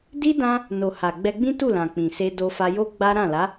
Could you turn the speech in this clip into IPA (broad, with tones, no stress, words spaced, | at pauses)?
di˦ dã˦ | no˨ ha˨ ɡ͡bɛ˧ɡ͡bĩ˦tu˦˨lã˨ k͡pĩ˨se˧ do˧fa˧jo˦ ɡ͡ba˦ ɾã˦˨la˨˦